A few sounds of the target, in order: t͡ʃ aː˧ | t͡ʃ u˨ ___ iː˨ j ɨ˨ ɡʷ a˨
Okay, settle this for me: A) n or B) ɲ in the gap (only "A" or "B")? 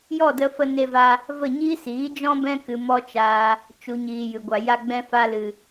B